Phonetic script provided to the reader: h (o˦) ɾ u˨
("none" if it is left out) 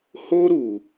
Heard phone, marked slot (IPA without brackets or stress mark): o˦